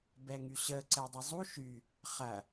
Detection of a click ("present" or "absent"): present